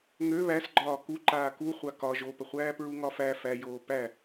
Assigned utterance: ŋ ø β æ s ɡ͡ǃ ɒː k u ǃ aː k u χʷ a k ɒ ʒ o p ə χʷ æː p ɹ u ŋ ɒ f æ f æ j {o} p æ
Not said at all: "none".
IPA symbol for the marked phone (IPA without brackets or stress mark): oː